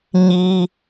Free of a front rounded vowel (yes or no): yes